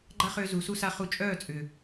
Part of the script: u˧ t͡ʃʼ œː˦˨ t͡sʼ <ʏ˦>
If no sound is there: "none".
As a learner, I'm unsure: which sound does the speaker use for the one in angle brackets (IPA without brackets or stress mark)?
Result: ʏ˨